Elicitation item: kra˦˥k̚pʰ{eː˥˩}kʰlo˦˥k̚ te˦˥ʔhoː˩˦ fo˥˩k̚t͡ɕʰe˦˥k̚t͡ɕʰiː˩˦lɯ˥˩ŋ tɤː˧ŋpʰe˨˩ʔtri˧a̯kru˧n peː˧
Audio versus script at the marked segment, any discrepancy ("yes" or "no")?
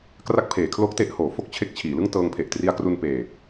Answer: yes